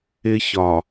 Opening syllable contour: high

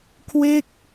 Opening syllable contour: falling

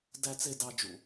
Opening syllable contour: low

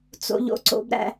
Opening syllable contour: low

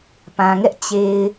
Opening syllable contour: low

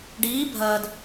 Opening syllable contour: rising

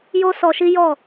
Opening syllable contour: high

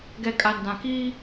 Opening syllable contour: low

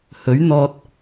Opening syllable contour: rising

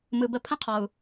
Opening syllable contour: low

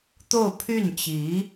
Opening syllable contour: falling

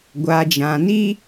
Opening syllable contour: high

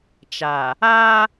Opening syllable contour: low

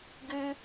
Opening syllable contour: high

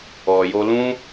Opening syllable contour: low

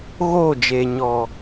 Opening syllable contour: falling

